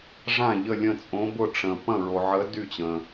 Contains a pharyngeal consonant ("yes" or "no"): yes